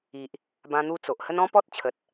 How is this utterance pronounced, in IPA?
i˨ ʔ | b ã˧ n̪ u˧ t͡s o˨ ʔ h ə˦ n ɔ̃˦ p ɔ˦ t̚ t͡ɕʰ ə˨ t̚

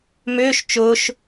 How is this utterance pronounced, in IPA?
m ʏː ʃ t͡ʃ ʊː ʃ

